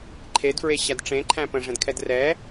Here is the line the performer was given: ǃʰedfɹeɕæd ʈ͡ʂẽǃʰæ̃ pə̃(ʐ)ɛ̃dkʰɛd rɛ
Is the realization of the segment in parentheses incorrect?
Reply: no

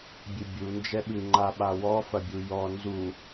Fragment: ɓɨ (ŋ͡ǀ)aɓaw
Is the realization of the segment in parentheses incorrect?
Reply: yes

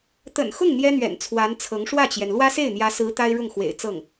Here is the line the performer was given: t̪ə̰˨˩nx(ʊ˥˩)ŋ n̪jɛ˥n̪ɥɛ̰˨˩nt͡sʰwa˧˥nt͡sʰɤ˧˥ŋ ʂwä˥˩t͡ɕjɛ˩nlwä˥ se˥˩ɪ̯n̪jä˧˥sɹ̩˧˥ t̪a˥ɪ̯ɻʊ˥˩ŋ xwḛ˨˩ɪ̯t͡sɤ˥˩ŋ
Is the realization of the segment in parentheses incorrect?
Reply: no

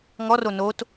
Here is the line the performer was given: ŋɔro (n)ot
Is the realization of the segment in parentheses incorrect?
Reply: no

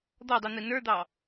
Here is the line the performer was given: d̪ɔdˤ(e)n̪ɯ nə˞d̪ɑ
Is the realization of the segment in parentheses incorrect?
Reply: yes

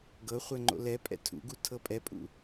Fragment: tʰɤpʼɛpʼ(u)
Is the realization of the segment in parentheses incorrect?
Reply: yes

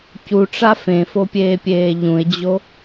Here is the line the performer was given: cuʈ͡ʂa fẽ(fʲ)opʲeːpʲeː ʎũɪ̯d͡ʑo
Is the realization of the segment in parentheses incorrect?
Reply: yes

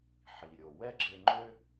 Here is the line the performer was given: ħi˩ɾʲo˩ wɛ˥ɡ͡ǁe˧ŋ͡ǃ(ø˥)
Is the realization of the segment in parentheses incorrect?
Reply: no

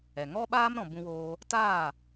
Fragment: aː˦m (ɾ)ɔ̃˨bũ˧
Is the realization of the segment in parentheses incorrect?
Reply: no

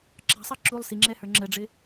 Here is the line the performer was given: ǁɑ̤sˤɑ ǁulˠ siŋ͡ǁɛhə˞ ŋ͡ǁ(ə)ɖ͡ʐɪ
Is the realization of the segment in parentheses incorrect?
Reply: no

